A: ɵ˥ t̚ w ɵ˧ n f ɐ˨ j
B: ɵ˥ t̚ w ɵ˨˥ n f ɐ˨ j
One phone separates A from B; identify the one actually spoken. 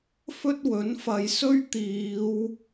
B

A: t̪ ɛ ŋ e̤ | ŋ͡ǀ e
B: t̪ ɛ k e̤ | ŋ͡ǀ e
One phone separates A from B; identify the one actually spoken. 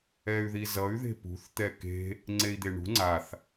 B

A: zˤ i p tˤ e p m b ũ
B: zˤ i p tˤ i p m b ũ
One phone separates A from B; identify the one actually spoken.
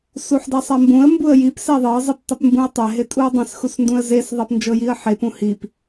A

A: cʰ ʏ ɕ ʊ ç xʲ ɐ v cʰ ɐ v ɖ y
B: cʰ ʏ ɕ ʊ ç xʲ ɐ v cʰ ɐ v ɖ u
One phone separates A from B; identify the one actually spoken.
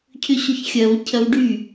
A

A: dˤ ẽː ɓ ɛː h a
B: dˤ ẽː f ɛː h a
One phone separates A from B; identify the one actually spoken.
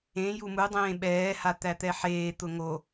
A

